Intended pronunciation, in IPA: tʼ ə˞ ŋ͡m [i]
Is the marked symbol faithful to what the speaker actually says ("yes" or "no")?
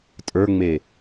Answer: no